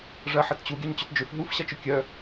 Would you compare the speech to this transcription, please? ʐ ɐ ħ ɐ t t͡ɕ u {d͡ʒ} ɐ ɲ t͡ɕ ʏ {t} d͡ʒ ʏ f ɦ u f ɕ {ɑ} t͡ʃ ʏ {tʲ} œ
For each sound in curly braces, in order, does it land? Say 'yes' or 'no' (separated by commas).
no, yes, no, no